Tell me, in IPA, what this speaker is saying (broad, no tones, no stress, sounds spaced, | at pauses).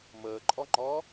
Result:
m əː ǃʼ ɔ ŋ͡ǃ ɔ